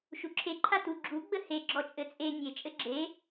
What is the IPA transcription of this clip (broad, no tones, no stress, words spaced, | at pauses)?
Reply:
ʃuǁʰe ǃʰatu ɡ͡ǁu ɡ͡bəhe ɡ͡ǁɔt͡ʃʼɘt͡sʼe nʲe t͡ʃʼɘɡ͡ǁe